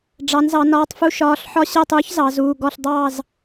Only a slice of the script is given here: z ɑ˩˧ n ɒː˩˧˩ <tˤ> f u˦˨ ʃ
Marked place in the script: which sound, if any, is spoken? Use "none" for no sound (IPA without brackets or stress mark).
tˤ